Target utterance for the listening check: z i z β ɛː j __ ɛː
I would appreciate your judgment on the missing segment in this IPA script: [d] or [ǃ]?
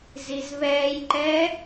ǃ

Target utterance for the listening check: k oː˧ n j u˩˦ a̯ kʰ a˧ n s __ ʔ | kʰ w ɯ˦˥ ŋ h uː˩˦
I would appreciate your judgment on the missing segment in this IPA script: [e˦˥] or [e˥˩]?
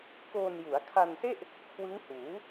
e˥˩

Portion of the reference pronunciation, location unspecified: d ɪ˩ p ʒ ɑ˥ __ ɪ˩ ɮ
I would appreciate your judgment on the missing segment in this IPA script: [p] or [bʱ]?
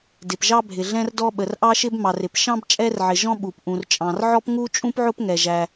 bʱ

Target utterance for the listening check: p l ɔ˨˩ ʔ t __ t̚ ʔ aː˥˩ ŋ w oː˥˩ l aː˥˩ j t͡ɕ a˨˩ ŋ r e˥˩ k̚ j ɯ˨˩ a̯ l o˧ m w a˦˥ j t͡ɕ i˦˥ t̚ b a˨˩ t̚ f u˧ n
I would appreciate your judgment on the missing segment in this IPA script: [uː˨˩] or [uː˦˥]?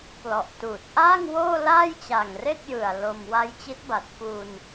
uː˨˩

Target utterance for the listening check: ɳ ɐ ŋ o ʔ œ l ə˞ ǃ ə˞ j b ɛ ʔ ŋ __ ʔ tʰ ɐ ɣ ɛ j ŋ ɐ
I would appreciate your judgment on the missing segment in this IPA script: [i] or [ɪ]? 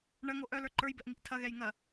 i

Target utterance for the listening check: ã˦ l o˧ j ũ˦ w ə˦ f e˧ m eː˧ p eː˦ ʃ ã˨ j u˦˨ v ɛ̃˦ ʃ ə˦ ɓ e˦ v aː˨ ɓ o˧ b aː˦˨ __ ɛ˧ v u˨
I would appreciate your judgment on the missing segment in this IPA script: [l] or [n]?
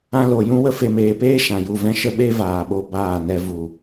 n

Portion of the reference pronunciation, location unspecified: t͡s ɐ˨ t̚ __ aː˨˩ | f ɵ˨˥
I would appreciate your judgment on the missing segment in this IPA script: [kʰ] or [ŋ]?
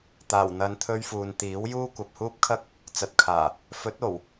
kʰ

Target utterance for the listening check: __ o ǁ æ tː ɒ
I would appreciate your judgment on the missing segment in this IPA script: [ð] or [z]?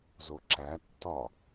z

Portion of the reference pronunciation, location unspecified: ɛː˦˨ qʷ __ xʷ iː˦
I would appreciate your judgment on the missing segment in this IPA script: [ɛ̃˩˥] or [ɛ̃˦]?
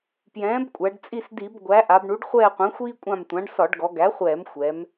ɛ̃˩˥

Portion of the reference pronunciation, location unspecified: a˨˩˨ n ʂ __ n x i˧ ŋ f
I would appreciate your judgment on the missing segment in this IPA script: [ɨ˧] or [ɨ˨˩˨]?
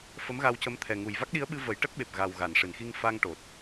ɨ˨˩˨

